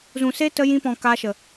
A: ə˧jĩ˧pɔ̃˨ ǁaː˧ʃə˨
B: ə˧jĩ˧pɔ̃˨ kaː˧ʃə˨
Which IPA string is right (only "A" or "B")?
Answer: B